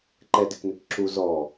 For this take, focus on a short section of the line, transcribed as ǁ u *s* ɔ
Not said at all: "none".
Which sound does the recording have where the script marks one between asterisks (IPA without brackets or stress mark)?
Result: z